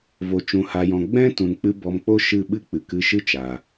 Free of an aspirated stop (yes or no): yes